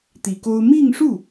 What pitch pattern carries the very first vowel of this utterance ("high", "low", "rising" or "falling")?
low